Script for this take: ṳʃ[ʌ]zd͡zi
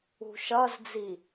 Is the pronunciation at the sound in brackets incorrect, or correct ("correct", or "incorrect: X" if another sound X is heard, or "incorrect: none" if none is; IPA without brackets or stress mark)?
correct